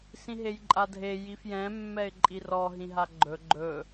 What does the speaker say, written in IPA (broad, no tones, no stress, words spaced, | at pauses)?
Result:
sĩɦejǃʼadʱe jifjɛ̃ mːɛɪ̯ǃʼirɔ ɦĩɦaɡ͡ǃɵ ɡ͡ǃɵ